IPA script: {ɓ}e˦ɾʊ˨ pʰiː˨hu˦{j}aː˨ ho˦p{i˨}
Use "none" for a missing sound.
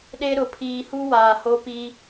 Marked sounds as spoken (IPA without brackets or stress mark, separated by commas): ɗ, w, i˦